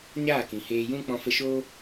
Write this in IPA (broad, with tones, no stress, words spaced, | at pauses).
ɲaː˦˨kĩ˨ heː˧ jũ˦k͡pɔ̃˧fə˧ʃoː˦